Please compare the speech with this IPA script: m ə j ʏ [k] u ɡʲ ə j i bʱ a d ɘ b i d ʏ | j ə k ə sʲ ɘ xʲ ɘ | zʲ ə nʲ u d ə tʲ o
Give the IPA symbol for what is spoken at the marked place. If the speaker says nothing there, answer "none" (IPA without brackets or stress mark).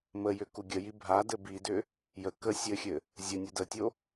k